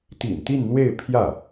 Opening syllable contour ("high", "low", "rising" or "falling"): low